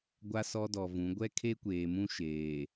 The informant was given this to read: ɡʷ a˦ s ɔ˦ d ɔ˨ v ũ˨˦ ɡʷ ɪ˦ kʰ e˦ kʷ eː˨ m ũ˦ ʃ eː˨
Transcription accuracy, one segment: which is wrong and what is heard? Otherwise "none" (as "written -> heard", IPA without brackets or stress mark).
ɪ˦ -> ɛ˦